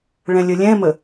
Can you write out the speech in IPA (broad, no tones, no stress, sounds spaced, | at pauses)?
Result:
ɭ ɛ̃ lʲ ə lʲ ɛ̃ m ə